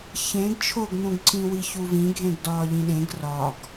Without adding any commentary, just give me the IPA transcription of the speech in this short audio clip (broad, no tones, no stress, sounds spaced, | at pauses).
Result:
ç ẽ ɡ t͡ʃʰ o ɡ n ũ ɡ ǀ ĩ w i ç u v ĩ ɡʱ ẽ ɡ d ɒː ʎ ĩ ɗ ẽ ɡ r ɒ ɡ